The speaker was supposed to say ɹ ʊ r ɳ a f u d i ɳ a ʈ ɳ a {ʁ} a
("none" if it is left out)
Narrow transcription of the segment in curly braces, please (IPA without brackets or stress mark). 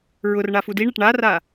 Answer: r